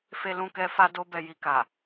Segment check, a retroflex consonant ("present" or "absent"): absent